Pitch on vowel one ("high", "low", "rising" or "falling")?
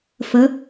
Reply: rising